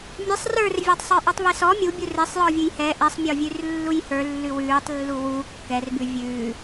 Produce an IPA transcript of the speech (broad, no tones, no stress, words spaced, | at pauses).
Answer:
mʲesˤ rə˞rvʲetˤ sˤə˞ʔə˞tˤβesɔ mʲubʲu resˤ jɔvʲʉjhɛ ʔɛsˤmʲɔ vʲʉrlːujhə˞lːʉ wʉːtˤlːu wu kːɛrbʉ vʲʉː